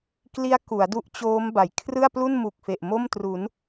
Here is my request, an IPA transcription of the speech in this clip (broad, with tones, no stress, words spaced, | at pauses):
kli˦˥a̯ku˩˦a̯ du˦˥ʔt͡ɕoː˦˥m ba˨˩j kʰrɯ˥˩a̯plu˥˩nmu˨˩k̚fe˨˩ʔ mo˥˩mtru˩˦n